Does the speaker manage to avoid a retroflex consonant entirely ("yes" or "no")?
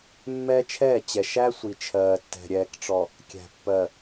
no